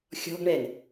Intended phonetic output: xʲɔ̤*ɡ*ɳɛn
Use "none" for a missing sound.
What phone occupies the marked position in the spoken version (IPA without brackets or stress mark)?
ɡ